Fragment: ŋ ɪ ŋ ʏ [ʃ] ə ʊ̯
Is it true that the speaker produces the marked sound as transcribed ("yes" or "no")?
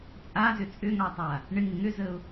no